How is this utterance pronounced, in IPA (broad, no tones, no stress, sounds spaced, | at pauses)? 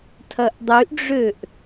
tʰ ɐ ʔ dˤ y ʔ ɖ͡ʐ ø ʔ